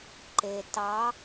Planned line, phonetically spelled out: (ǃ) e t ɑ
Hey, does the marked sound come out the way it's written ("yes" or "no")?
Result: yes